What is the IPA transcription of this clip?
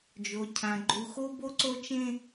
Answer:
d͡ʒ o˨ cʰ ã˨ ɡ͡ǃ u˨ x o˦ b o˦ ǀ o˦ t͡ʃ ẽ˦

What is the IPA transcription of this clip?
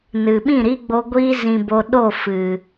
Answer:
n ɨ˨ ɓ ĩ˦˨ ɾ i˦ ɡ͡b o˧ ɡʷ i˧ z ĩ˨ b o˨ ɗ o˦˨ f ɨ˨

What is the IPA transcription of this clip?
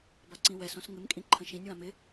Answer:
b a ǀ ĩ w ɛ s õ s ŋ ɪ m kʼ ĩ ǃʰ ə̃ ʃ ĩ nʲ w ã m ɪ

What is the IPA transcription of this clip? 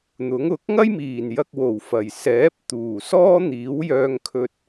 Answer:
n̪ ʊ˨˥ ŋ ʊ˨˥ k̚ ŋ ɐ˥ j m iː˨˩ n j ɐ˧ k̚ w o˨˩ w f ɐ˨˩ j s ɛː˨˥ p̚ t̪ uː˨˩ s ɔː˥ n̪ iː˨˥ w j œː˧ ŋ kʰ ɵ˧ t̚

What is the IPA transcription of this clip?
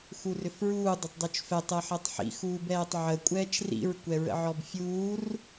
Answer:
x u r ʏ f ɹ uː dˤ ə tˤ dˤ u t͡ʃ f ɛ tˤ ɛ ħ ɛ tˤ ħ ḭ x uː b ɛː tˤ ʕ ə kʷʼ ɛː t͡ʃ r ḭ ɹ kʷ ɛ ɹ ə̰ ʕ ɔ b fʲ uː r

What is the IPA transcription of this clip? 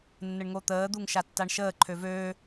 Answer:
nː ə ɳ ŋ o t̪ əː d̪ u ŋ ʃ a tː a ɳ ʃ əː ǃʰ ø v øː

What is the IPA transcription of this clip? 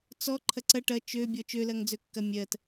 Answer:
t͡s ɔ ǃʰ ɐ ǀ ɐ ʈ ɐ t͡ʃ ø bʲ ɔ t͡ʃ ø l ɐ ŋ d͡z ø kː ɐ mʲ ɜ t

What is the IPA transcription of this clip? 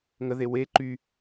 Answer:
ŋ ə ð e w e ǃ y

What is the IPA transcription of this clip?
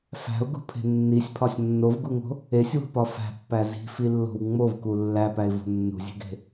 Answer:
f æ̤ ʊ̯ ɡ ṳ pʰ e̤ nː i sʲ pʰ ɒ sʲ nː o v ɡ u ŋ o̤ | e sʲ w o̤ p ɒ f æ̤ pː æ z i̤ f i lː o̤ w ŋ͡m o v k u lː æ p æ ɪ̯ v o̤ nː ṳ zʲ e̤ ɡ e̤

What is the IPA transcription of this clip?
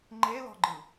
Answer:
ŋ͡ǃ e l ɔ̤ ɡ͡ǃ ɯ

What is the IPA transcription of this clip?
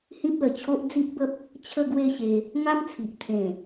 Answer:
h ĩ˦ p̚ l ə˨˩ t͡ɕʰ o˦ ʔ d͡z i˦ ʔ b ə˦ p̚ | t͡ɕʰ ə˥˧ ɡ w e˥˧ ɕ e˧ | ŋ a˦ m t͡sʰ i˨ ʔ t̪ʰ ẽ˨˩

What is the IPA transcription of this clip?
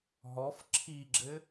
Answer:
ɦ ɔ f ǁʰ i ɡ͡ǁ ɘ

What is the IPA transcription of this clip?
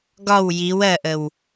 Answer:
ɡ ɒ w j i w ɜ ʔ ə w

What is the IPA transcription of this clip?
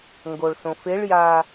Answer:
ŋ ɡ o ɭ s õ f e ɭ j a

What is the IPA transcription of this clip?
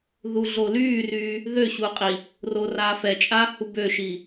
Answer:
ð u ɮ o l yː r yː | ð ø ɕ u qʼ i | r o r aː f ɛ t͡ʃʼ aː h u b ø ʃ i

